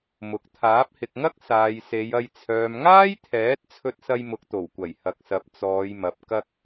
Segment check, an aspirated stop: present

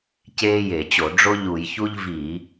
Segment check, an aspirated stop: absent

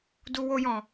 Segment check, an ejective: absent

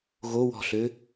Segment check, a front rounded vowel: present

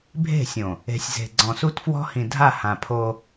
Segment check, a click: present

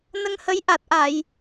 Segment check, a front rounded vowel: absent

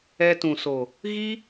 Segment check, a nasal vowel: present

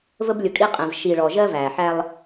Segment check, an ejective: present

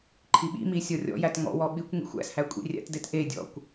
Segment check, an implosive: present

